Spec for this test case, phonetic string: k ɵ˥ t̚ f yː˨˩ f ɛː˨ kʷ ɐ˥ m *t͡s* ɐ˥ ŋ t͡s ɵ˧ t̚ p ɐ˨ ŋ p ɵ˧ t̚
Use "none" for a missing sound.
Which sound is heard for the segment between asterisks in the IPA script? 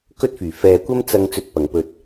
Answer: t͡s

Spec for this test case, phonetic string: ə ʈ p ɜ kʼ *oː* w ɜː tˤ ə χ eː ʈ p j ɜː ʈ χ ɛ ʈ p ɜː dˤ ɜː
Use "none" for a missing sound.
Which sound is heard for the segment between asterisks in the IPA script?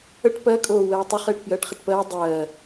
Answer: oː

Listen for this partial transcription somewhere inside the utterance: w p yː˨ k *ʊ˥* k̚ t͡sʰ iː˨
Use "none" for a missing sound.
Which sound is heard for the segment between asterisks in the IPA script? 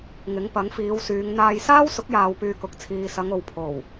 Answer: ʊ˨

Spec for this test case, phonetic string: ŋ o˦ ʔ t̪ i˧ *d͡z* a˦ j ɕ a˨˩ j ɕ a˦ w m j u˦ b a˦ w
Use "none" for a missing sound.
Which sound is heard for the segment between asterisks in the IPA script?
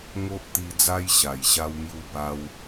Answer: d͡z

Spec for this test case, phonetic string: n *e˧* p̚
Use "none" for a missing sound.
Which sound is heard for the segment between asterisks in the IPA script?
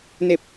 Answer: e˧˩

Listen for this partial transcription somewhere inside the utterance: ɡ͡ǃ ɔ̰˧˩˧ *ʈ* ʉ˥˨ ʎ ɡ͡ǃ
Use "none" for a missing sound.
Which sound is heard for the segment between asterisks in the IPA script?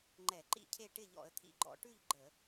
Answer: ʈ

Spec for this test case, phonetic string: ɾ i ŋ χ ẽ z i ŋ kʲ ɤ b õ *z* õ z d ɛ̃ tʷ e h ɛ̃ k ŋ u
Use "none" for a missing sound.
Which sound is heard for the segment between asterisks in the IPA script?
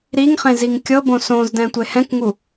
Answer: s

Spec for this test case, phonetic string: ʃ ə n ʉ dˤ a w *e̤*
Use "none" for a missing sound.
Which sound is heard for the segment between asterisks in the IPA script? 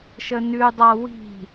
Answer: i̤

